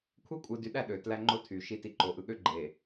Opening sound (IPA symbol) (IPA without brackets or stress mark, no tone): kʷʰ